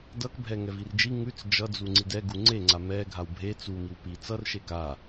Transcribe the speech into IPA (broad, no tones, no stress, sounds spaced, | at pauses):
d ʌ k bʱ ɛ ŋ ɛ v i r d͡ʒ i ŋ ʉ t͡s d͡ʒ ʌ d͡z u ŋ͡ǀ i d ɛ ɡ u ŋ͡ǀ e ŋ͡ǀ a m ɛ ɡʱ a w bʱ e t͡s u m i w p i t͡s ʌ r ʃ e k a